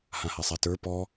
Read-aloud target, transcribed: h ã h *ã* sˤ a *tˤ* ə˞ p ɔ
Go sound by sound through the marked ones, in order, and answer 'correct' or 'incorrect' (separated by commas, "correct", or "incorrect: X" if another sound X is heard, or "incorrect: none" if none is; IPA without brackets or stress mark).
incorrect: a, incorrect: t